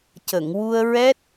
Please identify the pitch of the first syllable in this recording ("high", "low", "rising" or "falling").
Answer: low